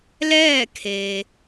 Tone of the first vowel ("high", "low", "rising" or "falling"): falling